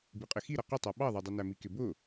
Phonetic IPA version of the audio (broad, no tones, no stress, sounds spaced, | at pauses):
b i qʼ ɪ x i ɾ ʌ q ɪ tˤ æ ɓ ɑ ðˤ ə˞ dˤ i n æ m i k ɪ b ʊ